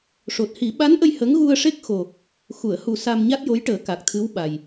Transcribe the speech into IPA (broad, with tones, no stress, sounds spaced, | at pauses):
ʂ o˨˩ t̚ h i˨˩˦ ɓ a˧˥ n ʔ ə˧ j h ə˧˥ ŋ ɣ u˧ ə̯ ʂ e˦˥ k̚ x o˨˩ | x u˨˩˨ ə̯ h u˨˩ s a˧ m ɲ a˦˥ t̚ j o˧˥ j ʈ əː˨˩˦ k a˨˩ k̚ t̪ʰ ɨ˧˥ w ɓ a˨˩ j